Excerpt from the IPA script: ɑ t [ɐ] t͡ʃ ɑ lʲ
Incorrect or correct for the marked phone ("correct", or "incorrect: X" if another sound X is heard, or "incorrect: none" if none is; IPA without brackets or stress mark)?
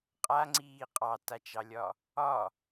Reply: incorrect: a